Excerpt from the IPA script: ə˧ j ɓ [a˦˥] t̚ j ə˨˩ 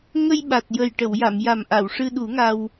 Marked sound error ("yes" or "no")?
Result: yes